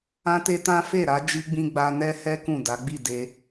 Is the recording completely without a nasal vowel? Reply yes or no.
no